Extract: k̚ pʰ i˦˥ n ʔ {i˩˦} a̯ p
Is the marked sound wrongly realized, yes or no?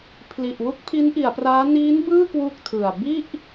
no